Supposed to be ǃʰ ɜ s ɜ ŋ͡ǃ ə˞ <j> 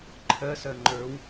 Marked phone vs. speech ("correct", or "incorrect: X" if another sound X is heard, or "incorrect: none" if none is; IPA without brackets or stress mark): incorrect: w